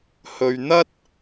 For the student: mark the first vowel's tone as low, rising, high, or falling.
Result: low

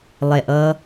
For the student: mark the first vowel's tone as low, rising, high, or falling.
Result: low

